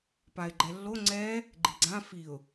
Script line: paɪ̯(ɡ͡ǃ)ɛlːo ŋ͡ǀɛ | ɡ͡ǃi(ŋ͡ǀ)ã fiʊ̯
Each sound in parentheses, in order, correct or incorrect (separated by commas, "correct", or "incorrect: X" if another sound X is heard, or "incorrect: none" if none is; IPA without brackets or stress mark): correct, incorrect: ɡ͡ǀ